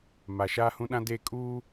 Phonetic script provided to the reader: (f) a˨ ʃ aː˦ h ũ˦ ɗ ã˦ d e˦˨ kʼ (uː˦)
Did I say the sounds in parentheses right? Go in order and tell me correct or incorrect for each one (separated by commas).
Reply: incorrect, correct